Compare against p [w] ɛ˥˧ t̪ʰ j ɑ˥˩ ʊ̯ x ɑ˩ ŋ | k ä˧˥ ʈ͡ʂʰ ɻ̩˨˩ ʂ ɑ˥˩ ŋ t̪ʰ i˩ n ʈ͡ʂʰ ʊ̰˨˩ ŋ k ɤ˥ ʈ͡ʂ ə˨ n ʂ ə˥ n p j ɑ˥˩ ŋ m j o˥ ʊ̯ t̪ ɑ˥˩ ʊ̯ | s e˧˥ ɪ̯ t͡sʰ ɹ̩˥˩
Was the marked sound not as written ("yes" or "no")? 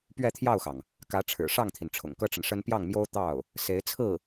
yes